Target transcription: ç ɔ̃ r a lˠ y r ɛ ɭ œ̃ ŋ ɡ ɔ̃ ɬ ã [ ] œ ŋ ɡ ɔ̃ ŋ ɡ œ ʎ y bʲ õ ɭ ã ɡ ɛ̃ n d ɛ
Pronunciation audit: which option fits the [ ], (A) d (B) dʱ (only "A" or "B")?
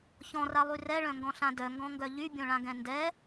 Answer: A